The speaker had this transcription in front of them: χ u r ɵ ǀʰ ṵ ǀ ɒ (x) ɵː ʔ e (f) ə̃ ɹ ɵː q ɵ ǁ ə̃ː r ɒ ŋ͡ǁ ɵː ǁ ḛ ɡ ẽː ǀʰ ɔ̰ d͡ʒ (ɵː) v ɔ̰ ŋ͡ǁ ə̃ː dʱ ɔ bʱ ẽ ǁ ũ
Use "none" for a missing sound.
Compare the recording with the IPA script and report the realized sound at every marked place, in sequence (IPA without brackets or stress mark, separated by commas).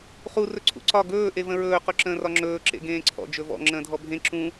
ɡ, v, ɵ